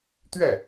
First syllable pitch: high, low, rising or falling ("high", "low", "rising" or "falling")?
falling